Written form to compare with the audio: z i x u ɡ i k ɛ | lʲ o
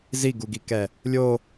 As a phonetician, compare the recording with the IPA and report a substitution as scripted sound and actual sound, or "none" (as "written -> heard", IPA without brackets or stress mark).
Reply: x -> ɡ